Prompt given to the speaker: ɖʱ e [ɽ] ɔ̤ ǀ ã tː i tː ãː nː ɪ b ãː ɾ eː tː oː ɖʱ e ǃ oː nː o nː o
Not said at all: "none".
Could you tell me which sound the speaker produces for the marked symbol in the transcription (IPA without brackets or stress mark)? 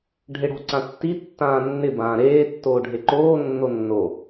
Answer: ɽ